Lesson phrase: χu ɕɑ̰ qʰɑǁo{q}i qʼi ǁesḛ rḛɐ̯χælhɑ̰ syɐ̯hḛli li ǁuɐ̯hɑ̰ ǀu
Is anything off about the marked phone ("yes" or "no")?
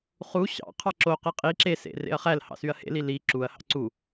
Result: no